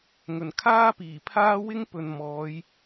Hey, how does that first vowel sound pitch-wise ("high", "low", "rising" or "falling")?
low